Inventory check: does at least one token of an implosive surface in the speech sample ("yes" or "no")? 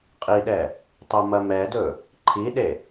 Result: yes